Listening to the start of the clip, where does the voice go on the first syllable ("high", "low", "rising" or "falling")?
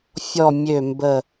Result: low